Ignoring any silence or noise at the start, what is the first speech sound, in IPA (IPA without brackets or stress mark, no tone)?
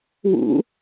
w